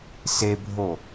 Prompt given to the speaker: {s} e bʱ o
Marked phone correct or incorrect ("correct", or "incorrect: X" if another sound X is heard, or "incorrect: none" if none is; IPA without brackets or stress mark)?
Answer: correct